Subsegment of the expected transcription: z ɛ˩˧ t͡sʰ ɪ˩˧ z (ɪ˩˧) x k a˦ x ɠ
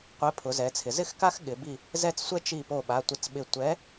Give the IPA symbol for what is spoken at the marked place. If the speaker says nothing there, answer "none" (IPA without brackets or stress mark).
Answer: ɪ˦